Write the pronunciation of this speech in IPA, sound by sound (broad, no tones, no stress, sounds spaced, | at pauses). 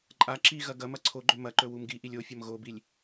ǃʼ a ǁ i ɣ ɐ ɡ ɐ m ɐ ǀʰ o ɡ͡ǃ ɵ m ɐ ǃ ɵ w u m ɡ i ʔ i lʲ o fʲ ɐ m ɣ o b i lʲ